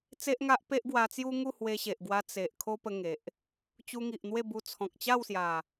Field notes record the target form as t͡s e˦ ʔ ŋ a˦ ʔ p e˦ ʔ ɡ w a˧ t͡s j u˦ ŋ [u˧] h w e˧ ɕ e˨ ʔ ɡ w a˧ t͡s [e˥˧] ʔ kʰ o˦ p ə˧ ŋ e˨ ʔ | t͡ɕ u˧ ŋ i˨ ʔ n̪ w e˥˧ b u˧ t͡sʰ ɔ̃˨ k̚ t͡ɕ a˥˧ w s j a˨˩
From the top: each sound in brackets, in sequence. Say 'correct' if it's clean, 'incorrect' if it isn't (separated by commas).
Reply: incorrect, incorrect